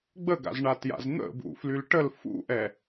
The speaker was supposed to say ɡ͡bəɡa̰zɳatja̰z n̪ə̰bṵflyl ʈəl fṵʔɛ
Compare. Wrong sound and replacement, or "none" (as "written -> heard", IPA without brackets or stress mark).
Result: none